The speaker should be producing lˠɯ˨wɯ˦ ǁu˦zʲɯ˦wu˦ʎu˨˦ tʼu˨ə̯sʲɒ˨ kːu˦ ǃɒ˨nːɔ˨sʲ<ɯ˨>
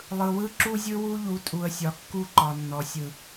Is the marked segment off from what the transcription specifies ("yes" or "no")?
no